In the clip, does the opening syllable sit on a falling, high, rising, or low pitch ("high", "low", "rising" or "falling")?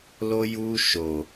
high